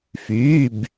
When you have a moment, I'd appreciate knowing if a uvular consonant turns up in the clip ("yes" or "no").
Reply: no